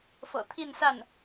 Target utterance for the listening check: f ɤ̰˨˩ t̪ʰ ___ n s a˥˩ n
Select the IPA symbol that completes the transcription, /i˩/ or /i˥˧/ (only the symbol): i˥˧